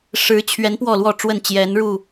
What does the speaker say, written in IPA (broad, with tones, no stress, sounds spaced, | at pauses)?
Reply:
ʂ ɻ̩˨˦ t͡ɕʰ ɥ ɛ˨˦ n p w ɔ˥˨ l w ɔ˥˨ ʈ͡ʂ w ə˥˨ n t͡ɕ j ɛ˨˦ n ɻ u˥˨